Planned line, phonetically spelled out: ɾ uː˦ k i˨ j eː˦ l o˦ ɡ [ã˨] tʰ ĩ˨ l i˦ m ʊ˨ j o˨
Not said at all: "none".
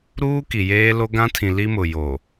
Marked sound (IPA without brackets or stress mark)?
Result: ã˦